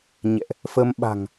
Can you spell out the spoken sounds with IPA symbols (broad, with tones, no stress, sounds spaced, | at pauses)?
ɲ ɛ̰˧˨ ʔ | f ə˧ m ɓ a̤˨˩ ŋ